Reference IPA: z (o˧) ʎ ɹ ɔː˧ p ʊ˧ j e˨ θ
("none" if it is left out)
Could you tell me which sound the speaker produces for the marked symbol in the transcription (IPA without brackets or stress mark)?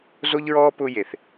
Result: o˧